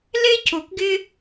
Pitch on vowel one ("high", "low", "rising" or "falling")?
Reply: high